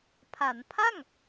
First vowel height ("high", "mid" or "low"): low